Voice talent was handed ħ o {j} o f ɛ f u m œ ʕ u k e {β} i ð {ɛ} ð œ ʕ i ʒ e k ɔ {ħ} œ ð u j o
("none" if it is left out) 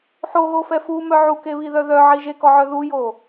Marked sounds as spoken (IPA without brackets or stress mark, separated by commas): ɣ, β, œ, ʕ